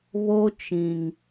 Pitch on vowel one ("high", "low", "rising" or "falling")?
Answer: high